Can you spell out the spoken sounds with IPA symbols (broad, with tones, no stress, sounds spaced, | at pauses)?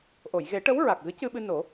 ʔ o˨˩˨ j ɣ e˨˩˦ ʈ ə˧˥ w ɹ a˨˩ k̚ ɣ ɨ˧˥ c ɨ˧ ɓ ɨ˧ n o˨˩˦